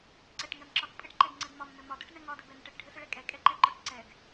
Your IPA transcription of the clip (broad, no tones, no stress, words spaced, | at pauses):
ǀɛʈŋɛmǁɒɡ pʼɘʈǃɛɡŋ͡ǀɘɡ mɒmnɘ mɒdoʈnɛ ŋɒdɘbɛnəʈ ɘʈɖʱɘsəɭɛ kʼɛkʼɛǃɛǃɒʈ ǀɛɡ